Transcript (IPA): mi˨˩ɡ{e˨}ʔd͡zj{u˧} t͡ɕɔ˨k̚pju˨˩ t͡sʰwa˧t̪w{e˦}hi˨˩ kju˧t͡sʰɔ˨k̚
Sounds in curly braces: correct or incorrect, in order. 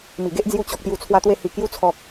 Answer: incorrect: e˦, correct, incorrect: e˧

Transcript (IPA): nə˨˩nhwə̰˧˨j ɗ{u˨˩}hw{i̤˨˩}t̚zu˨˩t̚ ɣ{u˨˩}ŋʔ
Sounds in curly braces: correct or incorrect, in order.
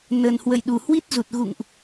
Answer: correct, incorrect: i˦˥, incorrect: ṵ˧˨

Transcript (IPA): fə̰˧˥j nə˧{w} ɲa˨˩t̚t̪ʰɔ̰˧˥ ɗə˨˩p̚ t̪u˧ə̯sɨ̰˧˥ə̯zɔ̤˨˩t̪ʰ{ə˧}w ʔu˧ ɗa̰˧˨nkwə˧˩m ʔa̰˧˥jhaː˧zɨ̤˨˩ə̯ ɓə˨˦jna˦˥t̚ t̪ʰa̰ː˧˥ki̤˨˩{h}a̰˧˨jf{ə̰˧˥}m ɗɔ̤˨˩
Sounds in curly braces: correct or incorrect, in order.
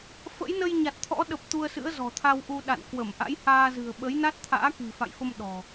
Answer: incorrect: j, incorrect: a˧, incorrect: f, incorrect: ə˧

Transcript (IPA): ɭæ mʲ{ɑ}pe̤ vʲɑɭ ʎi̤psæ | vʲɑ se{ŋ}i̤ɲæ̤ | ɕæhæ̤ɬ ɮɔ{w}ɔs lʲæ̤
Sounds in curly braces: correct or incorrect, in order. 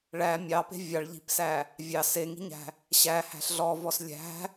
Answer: correct, correct, incorrect: v

